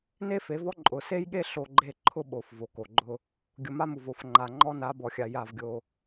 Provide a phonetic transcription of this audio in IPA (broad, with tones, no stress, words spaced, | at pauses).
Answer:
ne˦fe˨˦vɔ˦ ǃʼʊ˨ se˦jɠe˦ ɬo˦ɡ͡ǃe˦ ǃʰʊ˦ɓo˨f vo˨ko˨ɡ͡ǃʊ˦ | ɡʲʊ˨ma˦mu˨v o˨fŋ͡ǃa˨ ŋ͡ǃɔ˦na˨˦bɔ˨xʲa˨ ja˦˨vɡʲo˦